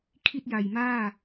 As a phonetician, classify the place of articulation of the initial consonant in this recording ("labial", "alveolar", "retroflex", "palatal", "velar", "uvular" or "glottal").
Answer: velar